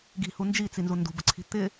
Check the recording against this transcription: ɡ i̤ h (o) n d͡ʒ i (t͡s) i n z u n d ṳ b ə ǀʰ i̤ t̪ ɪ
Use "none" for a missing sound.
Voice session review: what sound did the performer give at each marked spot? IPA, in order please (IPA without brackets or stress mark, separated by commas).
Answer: u, t͡s